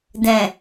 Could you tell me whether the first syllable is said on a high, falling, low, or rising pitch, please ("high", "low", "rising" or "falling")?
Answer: low